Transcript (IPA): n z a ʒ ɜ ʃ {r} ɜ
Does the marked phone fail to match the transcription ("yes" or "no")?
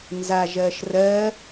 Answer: no